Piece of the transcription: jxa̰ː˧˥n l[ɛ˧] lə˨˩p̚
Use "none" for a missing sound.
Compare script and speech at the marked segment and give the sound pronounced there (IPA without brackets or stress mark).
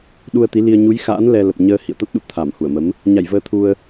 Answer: ɛ˧